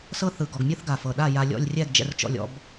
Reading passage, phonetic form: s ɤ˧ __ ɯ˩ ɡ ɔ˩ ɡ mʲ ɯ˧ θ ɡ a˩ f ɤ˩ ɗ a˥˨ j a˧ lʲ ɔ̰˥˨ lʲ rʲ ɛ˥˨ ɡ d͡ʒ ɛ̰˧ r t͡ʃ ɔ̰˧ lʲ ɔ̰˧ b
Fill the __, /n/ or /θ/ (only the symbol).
θ